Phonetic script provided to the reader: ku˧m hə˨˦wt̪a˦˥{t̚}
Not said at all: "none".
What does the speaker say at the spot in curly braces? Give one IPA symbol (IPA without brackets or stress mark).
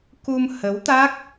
k̚